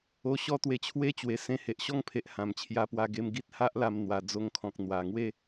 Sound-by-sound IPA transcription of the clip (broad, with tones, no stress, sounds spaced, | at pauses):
o˧ ɕ ɔ˥˧ t̪ w e˧ t͡ɕʰ w e˥˧ t͡ɕ w e˨˩ s ẽ˧ h e˨ ʔ ɕ ɔ˥˧ ŋ pʰ e˨ ʔ h ã˨˩ m t͡ɕʰ j a˧ p w a˧ ɡ e˧ m ɡ i˦ t̚ h a˦ ʔ l a˧ m n̪ w a˧ d͡z o˧ ŋ kʰ ɔ̃˨ k̚ n̪ w a˨˩ ŋ w e˥˧